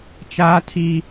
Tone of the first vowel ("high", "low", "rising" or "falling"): high